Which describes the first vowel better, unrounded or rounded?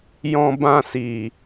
rounded